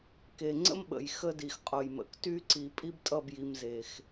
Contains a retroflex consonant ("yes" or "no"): no